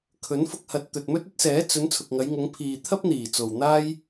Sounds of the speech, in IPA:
kʰ ɵ˨˥ n f ʊ˧ k̚ h ɐ˨ t̚ t̪ ɵ˨ t̚ m ɵ˥ t̚ ɵ˥ t̚ s ɛː˨˥ t͡s ɵ˨˧ n t͡sʰ ʊ˨ k̚ ŋ ɐ˨˧ j ŋ ʊ˨˧ ŋ pʰ iː˨ t̪ʰ ɐ˥ p̚ n̪ iː˨˩ t͡s o˨ w n̪ aː˥ j

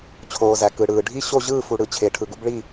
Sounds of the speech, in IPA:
t͡ɕʰ oː˩ z æ˩ k ɯː˩ ɽ ɯː˩ ɖʱ i˥˨ ɕ o˥˨ ʑ ɯː˥˨ f u˩ ɽ ɯ˩ t͡ɕʰ e˩ ʈʰ ɯ˩ ɡ u˥˨ b ɭ i˥˨

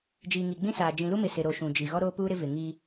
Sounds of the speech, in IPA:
d͡ʒ iː˨ ŋ i˨ ɡ͡b ĩ˦ s aː˨ d͡ʒ ĩ˨ l u˦ m ɪ˨ s ɪ˨ ɾ o˨ ʃ ũ˨ d͡ʒ i˨ ɣ ɔ˦ ɾ oː˦ p uː˦ ɾ ɪ˦ v ɪ˨ ŋ iː˦

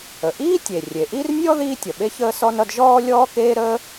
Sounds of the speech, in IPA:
ə˩ ʔ iː˥ tʲ e˩ rʲ e˩ ʔ i˥ r nʲ ɔ˥ ð iː˥ tʲ ʌ˩ ɓ e˥ ç əː˥ s ɔ˥ n ʌ˥ d ʒ ɔː˥ lʲ ɔː˥ k eː˥ ɾ əː˥

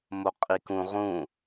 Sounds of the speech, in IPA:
m o qʼ i k ũ ʁ ũ

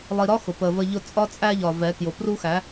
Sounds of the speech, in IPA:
lˠ i˨ ɾ ɒ˦ x ʊ˨ p ə˨ v ə˦ ʎ ʊ˦ t͡sʼ ɒ˦ t͡sʼ æ˦ ʎ ɒ˨ v ɛ˨˦ k j ʊ˨ p r u˦ x æ˨˦

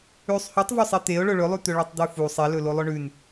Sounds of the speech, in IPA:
ʉ sˤ h ʉ tˤ v ɵ sˤ e t̪ e ʊ̯ ɭ ɵ ɭ ɵ lˠ ʉ t̪ ɵ ɭ e tˤ d̪ ʉ f u sˤ e l ɵ l o lˠ ɵ ɳ ʉ n

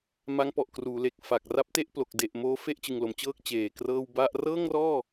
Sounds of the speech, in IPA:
m a˦˥ ŋ p ɔ˨˩ ʔ k r uː˩˦ l e˨˩ k̚ f a˨˩ k̚ r a˦˥ p̚ t e˥˩ ʔ p l o˨˩ k̚ d e˨˩ ʔ m oː˦˥ f e˥˩ ʔ t͡ɕ ɯ˨˩ ŋ l o˩˦ m t͡ɕ ɤː˥˩ k̚ t͡ɕ eː˨˩ k r ɤː˥˩ w b a˥˩ ʔ r ɤː˥˩ ŋ r ɔː˥˩

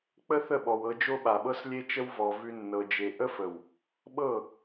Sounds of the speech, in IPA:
k͡p ə˦ θ ə˦˨ ɓ ɔ˨ w ɤ˧ d͡ʒ o˦ ɓ a˨ ɓ ɤ˦ s lʲ e˦ t͡ʃ ə˦ w v ɔ˨ v ʉ˧ nː ɤ˨ d͡ʒ e˨ ʔ ə˦ f ə˨ w | ɓ ɤ˦˨

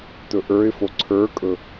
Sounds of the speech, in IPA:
t ɵ ʔ ə˞ ɪ̯ f o ǀʰ ə˞ kʼ ɵ

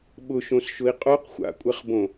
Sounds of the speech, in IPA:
ɓ ʊ ʃ õ s ʃ ʊ i̯ qʼ o q xʷ a̰ kʷʼ ɛ χ b õ

